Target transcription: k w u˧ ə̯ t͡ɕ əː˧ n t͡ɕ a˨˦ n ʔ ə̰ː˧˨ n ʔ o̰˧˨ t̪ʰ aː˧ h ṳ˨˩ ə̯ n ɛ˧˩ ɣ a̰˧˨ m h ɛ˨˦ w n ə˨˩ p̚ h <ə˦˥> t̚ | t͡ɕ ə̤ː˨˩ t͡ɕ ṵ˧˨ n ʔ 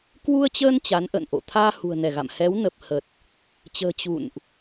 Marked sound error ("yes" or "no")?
yes